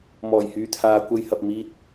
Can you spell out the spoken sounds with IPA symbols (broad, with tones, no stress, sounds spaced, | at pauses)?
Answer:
m ɔː˨˩ j h yː˧ t̪ʰ aː˨˧ kʷ ɐ˧ j h ɐ˨ p̚ m iː˧ t̚